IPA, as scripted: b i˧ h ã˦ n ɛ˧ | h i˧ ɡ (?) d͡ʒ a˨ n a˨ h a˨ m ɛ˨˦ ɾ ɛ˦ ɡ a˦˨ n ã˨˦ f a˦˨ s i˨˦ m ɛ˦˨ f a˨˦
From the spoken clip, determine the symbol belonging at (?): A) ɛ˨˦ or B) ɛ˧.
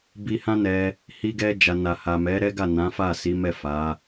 B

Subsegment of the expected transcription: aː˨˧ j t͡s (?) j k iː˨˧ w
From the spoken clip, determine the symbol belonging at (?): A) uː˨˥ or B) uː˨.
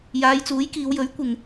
A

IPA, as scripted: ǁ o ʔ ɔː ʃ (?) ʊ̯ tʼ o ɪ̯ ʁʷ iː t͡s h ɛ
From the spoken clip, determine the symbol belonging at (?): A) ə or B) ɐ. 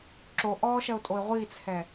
B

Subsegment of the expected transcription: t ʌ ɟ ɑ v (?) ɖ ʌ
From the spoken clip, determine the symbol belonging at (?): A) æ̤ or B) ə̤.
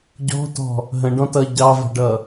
B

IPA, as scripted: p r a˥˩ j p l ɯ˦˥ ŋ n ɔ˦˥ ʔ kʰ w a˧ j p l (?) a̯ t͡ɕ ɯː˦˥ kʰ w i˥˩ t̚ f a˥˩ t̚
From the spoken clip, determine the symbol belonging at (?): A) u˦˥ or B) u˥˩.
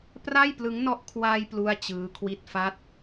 B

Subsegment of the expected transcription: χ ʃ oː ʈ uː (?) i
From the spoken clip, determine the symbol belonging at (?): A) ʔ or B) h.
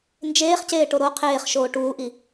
A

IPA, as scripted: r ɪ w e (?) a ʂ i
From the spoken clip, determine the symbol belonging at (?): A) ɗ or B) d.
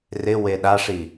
A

